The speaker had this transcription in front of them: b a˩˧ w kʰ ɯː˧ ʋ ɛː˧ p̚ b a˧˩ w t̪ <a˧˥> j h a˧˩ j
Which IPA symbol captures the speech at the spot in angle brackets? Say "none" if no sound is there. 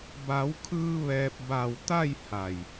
a˥˨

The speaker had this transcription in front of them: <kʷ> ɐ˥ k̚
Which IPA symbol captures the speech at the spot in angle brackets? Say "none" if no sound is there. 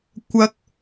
kʷ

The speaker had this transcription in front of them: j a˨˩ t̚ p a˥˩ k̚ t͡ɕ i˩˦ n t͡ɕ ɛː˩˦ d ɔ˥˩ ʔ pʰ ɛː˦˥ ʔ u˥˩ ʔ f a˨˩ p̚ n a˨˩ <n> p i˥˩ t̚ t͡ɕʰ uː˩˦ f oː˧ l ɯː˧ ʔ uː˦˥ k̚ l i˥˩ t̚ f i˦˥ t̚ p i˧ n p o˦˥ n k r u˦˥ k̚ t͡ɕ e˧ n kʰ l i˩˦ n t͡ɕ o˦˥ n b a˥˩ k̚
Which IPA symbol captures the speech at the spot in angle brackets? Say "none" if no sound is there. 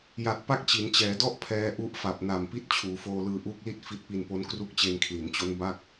m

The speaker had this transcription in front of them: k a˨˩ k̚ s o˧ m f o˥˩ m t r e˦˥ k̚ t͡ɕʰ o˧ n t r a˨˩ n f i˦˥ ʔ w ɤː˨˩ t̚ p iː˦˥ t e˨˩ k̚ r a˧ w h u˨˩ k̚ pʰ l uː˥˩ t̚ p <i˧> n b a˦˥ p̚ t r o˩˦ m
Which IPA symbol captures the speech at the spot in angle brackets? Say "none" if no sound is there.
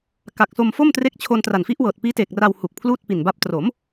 i˨˩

